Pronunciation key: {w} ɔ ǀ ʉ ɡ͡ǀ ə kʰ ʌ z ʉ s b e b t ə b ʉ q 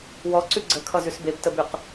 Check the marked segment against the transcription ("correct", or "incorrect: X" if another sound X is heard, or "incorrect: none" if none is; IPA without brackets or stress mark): correct